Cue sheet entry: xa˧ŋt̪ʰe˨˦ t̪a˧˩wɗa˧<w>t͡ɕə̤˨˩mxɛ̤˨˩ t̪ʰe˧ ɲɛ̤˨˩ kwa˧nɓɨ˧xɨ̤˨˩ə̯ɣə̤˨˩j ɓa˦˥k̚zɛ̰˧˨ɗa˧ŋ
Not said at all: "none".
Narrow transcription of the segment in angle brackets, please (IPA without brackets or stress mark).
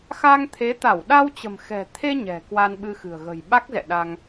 w